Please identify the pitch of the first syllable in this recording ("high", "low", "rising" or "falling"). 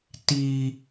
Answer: high